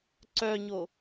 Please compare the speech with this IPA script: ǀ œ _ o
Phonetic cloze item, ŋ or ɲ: ɲ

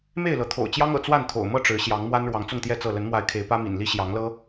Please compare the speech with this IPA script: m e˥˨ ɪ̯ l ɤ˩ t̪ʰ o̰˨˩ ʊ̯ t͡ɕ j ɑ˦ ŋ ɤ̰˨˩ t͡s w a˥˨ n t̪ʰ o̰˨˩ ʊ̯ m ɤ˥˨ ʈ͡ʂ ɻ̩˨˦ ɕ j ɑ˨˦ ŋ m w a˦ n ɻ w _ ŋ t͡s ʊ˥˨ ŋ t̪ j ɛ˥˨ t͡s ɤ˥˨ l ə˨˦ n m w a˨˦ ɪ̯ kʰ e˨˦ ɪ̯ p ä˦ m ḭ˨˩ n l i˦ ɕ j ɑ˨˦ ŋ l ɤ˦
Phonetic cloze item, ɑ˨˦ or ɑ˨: ɑ˨˦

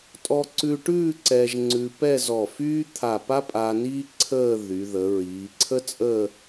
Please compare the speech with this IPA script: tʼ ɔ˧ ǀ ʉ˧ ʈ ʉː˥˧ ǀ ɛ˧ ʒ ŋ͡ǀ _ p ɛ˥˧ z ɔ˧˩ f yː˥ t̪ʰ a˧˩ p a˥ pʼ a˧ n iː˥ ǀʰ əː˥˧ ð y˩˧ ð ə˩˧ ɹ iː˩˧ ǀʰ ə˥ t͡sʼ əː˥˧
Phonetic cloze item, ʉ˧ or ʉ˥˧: ʉ˧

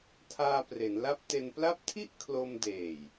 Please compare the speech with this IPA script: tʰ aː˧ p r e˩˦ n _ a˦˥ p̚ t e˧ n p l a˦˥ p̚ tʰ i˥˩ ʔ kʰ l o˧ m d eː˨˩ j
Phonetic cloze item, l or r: l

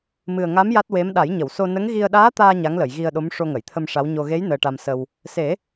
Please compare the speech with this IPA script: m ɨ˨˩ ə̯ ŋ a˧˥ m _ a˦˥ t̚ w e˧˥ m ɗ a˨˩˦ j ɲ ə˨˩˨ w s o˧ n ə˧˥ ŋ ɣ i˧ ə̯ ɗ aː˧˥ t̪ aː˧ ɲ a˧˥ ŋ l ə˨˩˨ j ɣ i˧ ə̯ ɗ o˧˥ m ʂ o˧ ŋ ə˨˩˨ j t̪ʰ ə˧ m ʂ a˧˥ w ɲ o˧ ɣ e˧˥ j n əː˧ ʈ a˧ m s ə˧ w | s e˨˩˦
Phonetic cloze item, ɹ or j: j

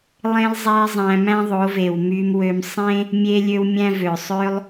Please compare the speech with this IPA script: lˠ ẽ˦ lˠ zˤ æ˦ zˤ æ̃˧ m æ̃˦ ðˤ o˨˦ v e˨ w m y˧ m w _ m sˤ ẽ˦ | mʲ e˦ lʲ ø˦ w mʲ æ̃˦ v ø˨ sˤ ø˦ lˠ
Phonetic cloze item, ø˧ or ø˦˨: ø˧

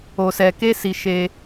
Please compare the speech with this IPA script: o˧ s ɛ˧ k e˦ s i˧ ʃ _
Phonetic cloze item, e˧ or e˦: e˧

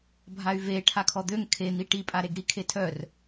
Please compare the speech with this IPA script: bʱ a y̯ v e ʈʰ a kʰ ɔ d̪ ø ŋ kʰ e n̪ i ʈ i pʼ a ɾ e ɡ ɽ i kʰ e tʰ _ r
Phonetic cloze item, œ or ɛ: œ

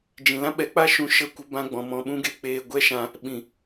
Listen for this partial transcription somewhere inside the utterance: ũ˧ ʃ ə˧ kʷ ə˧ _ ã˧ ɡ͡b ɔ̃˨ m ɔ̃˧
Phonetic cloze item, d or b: b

